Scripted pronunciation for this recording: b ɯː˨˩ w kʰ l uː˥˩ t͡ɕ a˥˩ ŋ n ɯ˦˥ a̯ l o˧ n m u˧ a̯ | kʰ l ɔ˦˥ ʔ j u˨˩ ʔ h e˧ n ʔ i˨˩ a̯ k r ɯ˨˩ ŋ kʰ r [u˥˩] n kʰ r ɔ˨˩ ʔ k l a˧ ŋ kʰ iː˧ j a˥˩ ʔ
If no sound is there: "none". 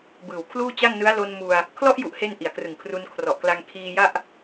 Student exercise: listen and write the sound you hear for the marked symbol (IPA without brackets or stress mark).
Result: u˧